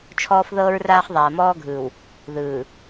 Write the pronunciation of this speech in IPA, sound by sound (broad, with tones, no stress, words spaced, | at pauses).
t͡ʃʰɔː˦fðɤː˦ɹraː˦χ ðˤaː˨mɔː˦ɡʱɯː˨w | ðɯː˨